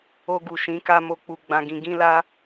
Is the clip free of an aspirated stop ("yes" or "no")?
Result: yes